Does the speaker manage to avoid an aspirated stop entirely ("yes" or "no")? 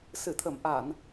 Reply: no